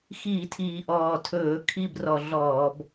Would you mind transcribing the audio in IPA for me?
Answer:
x iː˧˩˧ tʰ iː˨˩ ʔ ɔː˨˩ tʰ ɵː˧˩˧ kʰ i˥˨ b r ɔ˧˩˧ ɮ ɔː˧˩˧ b

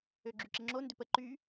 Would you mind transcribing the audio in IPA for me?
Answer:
ø ɡ͡ǁ y ǁ ɪ ŋ͡ǁ o n d ʏ p ə ǃ y

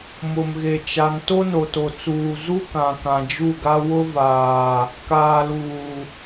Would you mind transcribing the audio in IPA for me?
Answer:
m ʊ˨ m ɣ e˨ t͡ʃ a˨ n t o˦ n o˨ t o˨ t͡s uː˨ z u˦ k ã˨ k ã˨ d͡ʒ u˦˨ ɡ a˦ w ʊ˦ v aː˨ | k aː˨ l uː˨

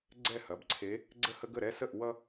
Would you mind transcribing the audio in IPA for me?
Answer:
ɡ͡ǀ ɛ˥˩ h ɐ˩˧˩ b ǀʰ e˨˦ | ɡ͡ǀ ə˥˩ h ə˦ ɡ ə˥˩ ɾ ɛ˦ s ə˥˩ ʔ w ʌ˦

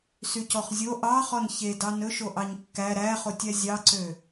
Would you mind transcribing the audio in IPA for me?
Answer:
s y c ɔ χ zʲ o ʔ ɑ χ ɔ n ç e d ɑ n ɵ ʃ o ʔ ɑ ɲ kː æ ɾ æ χ o tʲ æ zʲ ɑ ǀ ø

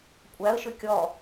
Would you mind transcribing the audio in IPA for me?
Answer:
kʷʼ æ ə̯ ʃ ʏ kʲ ɔ

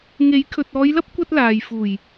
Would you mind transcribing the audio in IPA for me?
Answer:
ŋ e˨˥ j kʰ ɵ˨ t̚ ɔː˨˧ j l ɐ˥ p̚ kʷ ɐ˥ t̚ l aː˨ j f uː˨˩ j

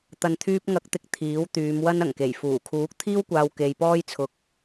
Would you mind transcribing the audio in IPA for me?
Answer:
t̪ ɐ˨ n t̪ʰ yː˧ p̚ ŋ ɐ˨˥ k̚ t̪ ɪ˨˥ k̚ t̪ʰ iː˨˥ w t̪ yː˨˧ m w ɐ˥ n ɐ˨˩ ŋ k e˨˩ j f uː˨˩ kʰ uː˨˥ k̚ t̪ʰ iː˥ w kʷ aː˧ w k e˧ j p ɔː˥ j t͡sʰ ʊ˧ k̚

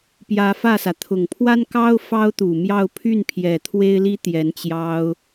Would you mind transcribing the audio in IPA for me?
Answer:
p j ä˧˥ f ä˥˩ s ä˩ t̪ʰ ʊ˨˩ ŋ pʰ w a˥ n k ɑ˥ ʊ̯ f ɑ˥ ʊ̯ t̪ u˨˩ m j ɑ˥˧ ʊ̯ pʰ y˥˩ n pʰ j ɛ˨˩ t̪ʰ w e˥ ɪ̯ l i˥ t̪ j ɛ˧˥ n t͡ɕ j ɑ˥ ʊ̯

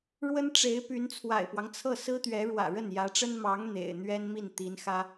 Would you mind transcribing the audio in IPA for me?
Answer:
ɻ w ə˥ n ʈ͡ʂ e˧˥ ɪ̯ p y˧˥ n t͡sʰ w a̰˨˩ ɪ̯ p w ɑ˦ ŋ t͡sʰ ɤ˥˩ s ɹ̩˥ t̪ ɥ ɛ˧˥ ɻ w ä̰˨˩ ɻ ə˥˩ n j ä˧˥ ʈ͡ʂ ə˥ n m ɑ˧˥ ŋ n̪ ḛ˨˩ ɪ̯ n̪ ɥ ɛ˥ n m i˥˩ n t̪ i˧˥ n x ä˥

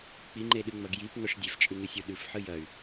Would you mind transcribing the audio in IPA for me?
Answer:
k͡p i ŋ͡ǃ e ɗ ɨ ŋ͡m ɐ ɡ j i p ŋ ɵ ʂ dʲ e f t͡ʃʼ ʉ ŋ ɨ sʲ u ɗ ʉ f ħ ɨ j ɐ y̯

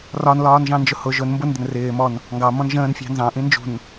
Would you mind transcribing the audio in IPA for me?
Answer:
r ɒ n l ɒː n ʒ ɑ̃ n d͡ʒ ʊ h ʊ ʒ ʊ n m b ʊ n d ə n r ɪː m ɔ n | ŋ ɡ ɑ m ɔ̃ n ʒ ə̃ː n fʲ ɑ̤ n z ɑ̃ ʔ ĩ n d͡ʒ ṳ n

